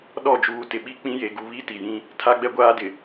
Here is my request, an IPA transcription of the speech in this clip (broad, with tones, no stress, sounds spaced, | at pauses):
ɗ ɔ˦˨ d͡ʒ uː˨ t ɪ˨ ɓ i˦ k͡p ĩ˦ j e˨ ɡ u˨ β i˦ t i˨ j ĩ˦ | tʰ a˦ ɡ͡b ɛ˦ ɡʷ aː˦ d ɪ˨